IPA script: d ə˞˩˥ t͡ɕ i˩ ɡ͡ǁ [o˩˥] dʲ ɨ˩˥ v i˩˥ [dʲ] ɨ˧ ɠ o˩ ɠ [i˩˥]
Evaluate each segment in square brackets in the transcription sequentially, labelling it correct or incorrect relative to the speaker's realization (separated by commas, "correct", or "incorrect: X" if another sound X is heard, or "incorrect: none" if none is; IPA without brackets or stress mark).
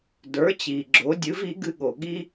correct, incorrect: ɡ, incorrect: i˥